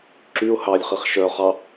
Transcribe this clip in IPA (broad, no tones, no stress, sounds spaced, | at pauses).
ǁ y ʊ̯ h ɑ lʲ χ i χ ʃ œ χ ɑ